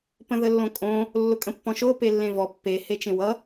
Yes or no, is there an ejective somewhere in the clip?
yes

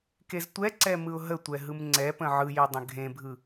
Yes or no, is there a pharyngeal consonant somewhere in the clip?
yes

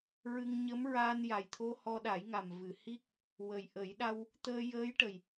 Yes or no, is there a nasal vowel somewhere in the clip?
no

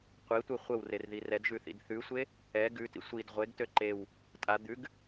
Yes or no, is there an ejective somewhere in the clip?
yes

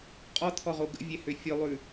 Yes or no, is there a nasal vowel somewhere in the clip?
no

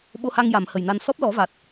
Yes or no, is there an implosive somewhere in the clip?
yes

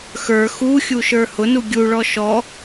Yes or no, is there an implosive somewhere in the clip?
no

